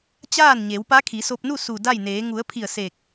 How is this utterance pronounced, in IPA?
t͡ɕ aː˥˨ n ɲ e˩˧ w p a˧˥ kʰ i˩˧ s o˧ p̚ n u˥˨ s u˧˩ d a˥˨ j n eː˩˧ ŋ u˩˧ ə̯ pʰ i˧˩ ə̯ s e˧˩ k̚

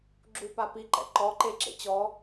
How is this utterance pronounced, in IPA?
ɡ͡ǁ u p a p i ǃ ɛ̰ ǃ ɔ ǃ e ǁ ḛ t͡ɕ ɔ

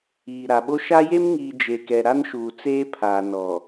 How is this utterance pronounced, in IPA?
iː˨ ɾ a˨ ɓ o˦ ʃ a˦ j e˦ m ŋ iː˨ d͡ʒ e˨ k ɛ˨ ɾ a˦ n ʃ uː˨ t͡s eː˦ pʰ aː˨ n ɔ˨

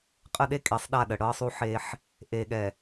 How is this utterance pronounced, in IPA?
qʼ ə˦ ɗ e˦ kʼ e˨˦ sˤ ɗ a˦˨ ɗ ə˨ ɽ ɤ˦ sˤ u˦ ħ e˦ ħ | ʔ e˨ ɠ ɛ˨

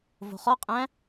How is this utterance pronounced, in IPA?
v o̤ χ ɔ qʼ æ̃

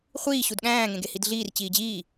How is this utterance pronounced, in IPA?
χʷ iː ɕ u d ɠ æ̃ː ŋ ẽ ɡ e h i d ɮ iː r t͡ɕ iː d͡ʑ iː

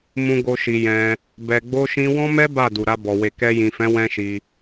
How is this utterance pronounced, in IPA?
m ũ˦ ɡ o˦ ʃ i˧ j ɛ̃˧ | b ɛ˧ ɡ͡b o˦ ʃ ĩ˦ w ɔ̃˦ m ɛ˦ b a˦˨ d u˨ ɾ a˧ b ɔ˨ w e˨ k ɛ˧ j ĩ˨ f ɛ̃˨˦ w ɛ̃˦ ʃ i˧

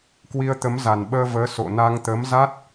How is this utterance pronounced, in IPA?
k w i˧ ə̯ t̪ ə˨˦ m z a˨˩ n ɓ əː˧ v əː˨˦ s o̰˧˨ n a˧ ŋ t̪ ə˨˦ m z a˦˥ t̚

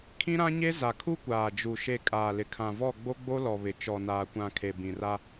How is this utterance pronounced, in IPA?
kʰ ĩ˦ ɾ ã˦ ɲ e˦ z a˨ kʰ u˦ kʷ aː˨ d͡ʒ u˨ ʃ e˦˨ kʼ aː˨ l ɪ˨ kʰ ã˨ v ɔ˦˨ ɡ͡b o˦ ɡ͡b o˦ l ɔ˨ β ɪ˨ t͡ʃ ɔ˨ n aː˨ kʷ ã˨ kʰ e˨ b ĩ˨ r a˦

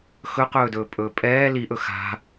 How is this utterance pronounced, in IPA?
x ɵ q ɵː d ɵː pʼ ɵː pʼ ɛː l i ʔ ɵ x a̤

